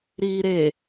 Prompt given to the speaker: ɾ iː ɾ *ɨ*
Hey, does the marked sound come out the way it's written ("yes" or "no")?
no